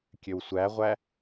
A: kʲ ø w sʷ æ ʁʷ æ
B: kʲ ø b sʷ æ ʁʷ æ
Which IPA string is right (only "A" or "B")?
A